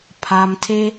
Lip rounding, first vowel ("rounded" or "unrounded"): unrounded